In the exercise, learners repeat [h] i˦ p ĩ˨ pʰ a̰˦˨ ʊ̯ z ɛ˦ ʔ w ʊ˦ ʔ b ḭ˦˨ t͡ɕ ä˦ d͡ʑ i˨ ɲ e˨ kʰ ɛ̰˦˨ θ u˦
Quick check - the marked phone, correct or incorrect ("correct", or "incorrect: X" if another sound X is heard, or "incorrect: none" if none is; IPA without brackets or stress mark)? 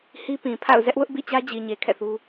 correct